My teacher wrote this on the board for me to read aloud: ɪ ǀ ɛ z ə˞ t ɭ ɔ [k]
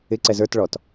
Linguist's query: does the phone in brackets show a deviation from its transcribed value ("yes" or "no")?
yes